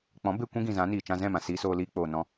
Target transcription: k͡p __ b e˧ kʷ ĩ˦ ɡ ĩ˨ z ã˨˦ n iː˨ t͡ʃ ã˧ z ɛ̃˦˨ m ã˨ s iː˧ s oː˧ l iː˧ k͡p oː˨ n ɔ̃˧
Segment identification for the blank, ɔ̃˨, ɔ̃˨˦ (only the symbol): ɔ̃˨˦